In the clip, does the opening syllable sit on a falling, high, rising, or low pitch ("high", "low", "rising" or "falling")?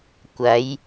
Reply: rising